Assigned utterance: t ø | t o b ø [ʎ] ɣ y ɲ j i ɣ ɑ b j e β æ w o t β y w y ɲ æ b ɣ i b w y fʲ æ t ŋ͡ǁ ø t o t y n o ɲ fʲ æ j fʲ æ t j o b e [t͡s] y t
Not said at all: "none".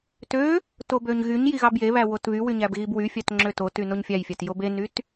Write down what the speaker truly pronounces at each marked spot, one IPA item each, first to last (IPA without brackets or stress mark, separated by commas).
ɲ, n